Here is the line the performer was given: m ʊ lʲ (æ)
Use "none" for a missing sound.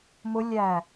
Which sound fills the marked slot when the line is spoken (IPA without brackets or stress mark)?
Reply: æ